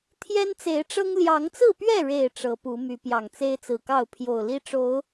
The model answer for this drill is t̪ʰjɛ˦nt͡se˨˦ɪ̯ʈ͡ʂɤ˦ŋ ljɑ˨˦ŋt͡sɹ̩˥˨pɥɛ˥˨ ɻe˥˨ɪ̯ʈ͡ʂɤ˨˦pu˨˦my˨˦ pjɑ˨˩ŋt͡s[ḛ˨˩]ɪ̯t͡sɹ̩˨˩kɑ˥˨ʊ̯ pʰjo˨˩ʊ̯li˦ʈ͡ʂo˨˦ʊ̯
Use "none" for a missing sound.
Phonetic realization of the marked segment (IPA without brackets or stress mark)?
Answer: e˦